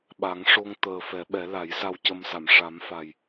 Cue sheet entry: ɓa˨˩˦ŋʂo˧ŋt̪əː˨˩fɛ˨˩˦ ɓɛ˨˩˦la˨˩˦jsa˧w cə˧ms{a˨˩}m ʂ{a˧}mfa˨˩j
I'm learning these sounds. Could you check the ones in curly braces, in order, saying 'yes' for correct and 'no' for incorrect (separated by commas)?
no, no